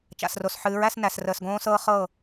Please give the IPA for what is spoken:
t͡ʃ a̰˨ s r o˨ s ħ ɨː˨˦ ɹ æ˦ s n æ˨ s r əː˨ s ɡ õː˦ s ɤː˦ χ ɤ˦˨

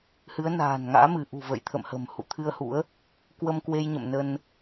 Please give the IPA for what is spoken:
h ɨ˨˦ ə̯ n a̤ː˨˩ n ŋ a̰ː˧˥ m ɨ˧˩ ʔ ṳ˨˩ v ə̰˧˨ j t̪ʰ ə̰˧˨ m h ə̤˨˩ m h ṵ˧˨ t̪ʰ ɨ˧ ə̯ h ṵ˧˥ ə̯ | k w ə˧ m k w e˧ j ɲ ə̰˧˨ m n ə˧ n

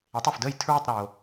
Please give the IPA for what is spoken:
e˩˥ tˤ œ˩ f d əː˥˩ j tʰ ɹ ə˥˩ tˤ ɾ oː˩

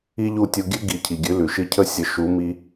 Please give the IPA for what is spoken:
i˥ ʎ u˥˩ tʲ u˧ ɡʲ ʉ˥ ɡ i˩˥ cʰ i˩ ɡʲ ʉ˩˥ l ʉ˩ ʃ i˧ cʰ ə˥˩ sʲ ə˩˥ ʃ u˩˥ m i˧

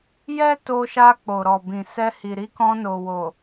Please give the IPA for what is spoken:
j ɛ˦ t o˧ ʃ a˧ k͡p o˨ ɾ ɔ˨ b ĩ˨ s ɛ˧ h i˨ ɾ i˧ k ɔ̃˧ n o˨ w o˨

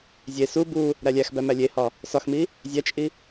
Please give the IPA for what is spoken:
zʲ e s u b u | ɾ æ lʲ æ x b æ m æ lʲ e h ɒ | s ɒ x m i | zʲ æ t͡ʃʼ i

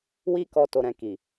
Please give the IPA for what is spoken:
w i˧ k ɔ˨ t o˨ ɾ ɛ̃˨ k i˨

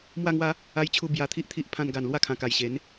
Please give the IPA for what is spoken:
m w a˥˧ ŋ w a˦ | a˦ j t͡ɕʰ u˥˧ b j a˧ t̪ʰ i˦ ʔ t̪ʰ i˦ ʔ pʰ ã˧ n ɡ a˨˩ n l w a˦ kʰ ã˨˩ k a˨˩ j ɕ e˨˦ n

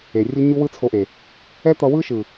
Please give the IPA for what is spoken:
e˨ rʲ u˦ ɲ u˦ w ɯ˦ t͡sʰ o˧ ʔ e˨ | ɛ˦ t̪ ʌ˧ w ɯ˦ ʃ ɯ˨

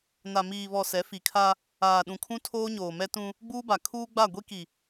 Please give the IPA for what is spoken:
n a˨ m iː˨ β ɔ˨ s ɛ˨˦ f i˨ kʰ a˦ | aː˨ ɗ ũ˨ kʰ ũ˦ tʰ oː˦ ɲ oː˨ m ɛ˦ t ũ˦ | ɡ͡b uː˦ b a˨ kʰ uː˦ ɡ͡b a˦˨ ɡʷ i˦ k i˨

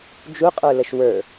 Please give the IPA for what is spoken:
d͡ʒ u qʼ ə˞ l ə ʃ w ə˞

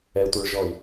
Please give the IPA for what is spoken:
ɛ tʷ œ ɭ ʒ ɔ i̯

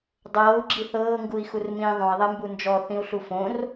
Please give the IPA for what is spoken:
dˤ ɤː u̯ ɡ͡ǁ i θ ɤː ŋ ɡ u i̯ x u r m ĩː ðˤ õ i̯ ðˤ ɛ m b u n d͡ʒ ɔ θ ĩ u̯ ɬ u f õ r

